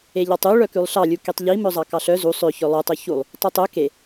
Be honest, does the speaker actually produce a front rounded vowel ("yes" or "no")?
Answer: yes